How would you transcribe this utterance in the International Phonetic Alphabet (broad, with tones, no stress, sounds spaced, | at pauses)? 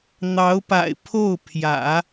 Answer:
n̪ ɑ˧˥ ʊ̯ p a̰˨˩ ɪ̯ pʰ o˥˩ ʊ̯ pʰ j ä̰˨˩˦